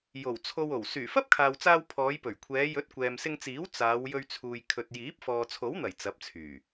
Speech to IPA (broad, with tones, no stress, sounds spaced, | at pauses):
j o˨˩ w t͡sʰ o˧ w o˨˩ w s yː˨˩ f ɐ˥ p̚ kʰ aː˨ w t͡s aː˧ w pʰ ɔː˨˧ j p ɵ˨˩ ɥ kʷʰ ɛː˨˧ j ɵ˨˥ t̚ kʷ ɛː˨ m s ɪ˧ ŋ t͡s iː˨˥ w t͡s aː˨˧ w j ɵ˧ ɥ t͡sʰ uː˨ j kʰ ɵ˨ t̚ j iː˨˥ p̚ f ɔː˨ t͡sʰ o˨˥ w n̪ ɐ˨˩ j t͡s ɐ˨˥ p̚ t͡sʰ yː˨˩